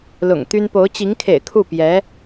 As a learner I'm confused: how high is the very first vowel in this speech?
high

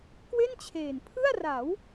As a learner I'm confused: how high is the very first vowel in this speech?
mid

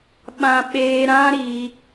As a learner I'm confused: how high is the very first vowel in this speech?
low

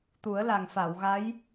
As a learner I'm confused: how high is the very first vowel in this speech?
high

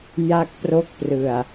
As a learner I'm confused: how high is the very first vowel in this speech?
low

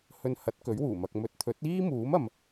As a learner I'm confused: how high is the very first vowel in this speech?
mid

